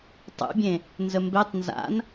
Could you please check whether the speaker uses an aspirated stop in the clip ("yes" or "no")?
no